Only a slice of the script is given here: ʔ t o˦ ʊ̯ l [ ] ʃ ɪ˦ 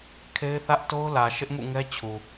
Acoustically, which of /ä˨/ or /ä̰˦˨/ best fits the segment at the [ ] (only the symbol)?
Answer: ä˨